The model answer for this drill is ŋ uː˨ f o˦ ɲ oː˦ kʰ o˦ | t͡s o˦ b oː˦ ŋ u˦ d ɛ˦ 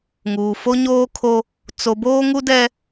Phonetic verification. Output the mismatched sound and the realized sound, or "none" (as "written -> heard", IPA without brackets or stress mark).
none